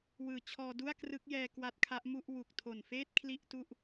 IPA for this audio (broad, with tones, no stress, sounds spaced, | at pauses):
w ɯː˨˩ t͡ɕʰ ɔː˧ d u˥˩ a̯ k r ɯ˦˥ k̚ j ɛː˧ k w a˦˥ t̚ kʰ a˦˥ ʔ m u˥˩ ʔ w u˨˩ k̚ tʰ o˨˩ n f eː˥˩ t̚ kʰ l i˥˩ ʔ t u˥˩ ʔ